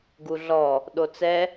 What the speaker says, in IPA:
ɡ u ɮ ɔ | ɗ o t͡s ɛ

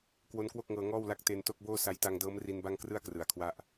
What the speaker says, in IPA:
k w o˦˥ n k w o˥˩ k̚ ŋ ɤː˧ ŋ ɔː˥˩ w l a˦˥ k̚ t e˧ n t o˥˩ k̚ b oː˥˩ s a˧ j t a˧ ŋ d ɤː˦˥ m r i˧ n b a˥˩ ŋ k r ɯ˥˩ a̯ k r ɯ˩˦ a̯ kʰ w a˦˥ ʔ

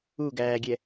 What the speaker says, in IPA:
u ɡ æː ɡʲ ɛ

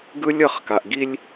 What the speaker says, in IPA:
ɡ ɯ˦ lʲ ʌ˦˨ χ k a˨ ʔ ɡ i˦ lʲ

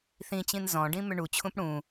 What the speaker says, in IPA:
θ ĩ t͡ɕ ĩ n z ɔ̃ ɖ ĩ m ʏ ɳ u t͡ɕʰ ũ p ɽ ũ

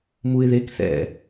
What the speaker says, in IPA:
m u ɪ̯ ð e k θ ɛ̰

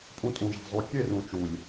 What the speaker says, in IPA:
pʼ ũ˧ tʼ ũ˨ ʒ a̤˨ zˤ u˨ kʲ e˦˨ r ũ˨ t͡ʃ u˨ lʲ

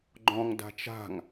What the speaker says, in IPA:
ɡ͡ǃ ɔ̃ ŋ d a̤ t͡ʃ a̤ ŋ

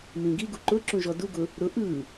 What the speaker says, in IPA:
m ĩ ɡ i ɡ u ǃ ʊ ǁ ũ ʒ ɔ d u ɡ ʊ | ɾ ʊ ʔ ɯ

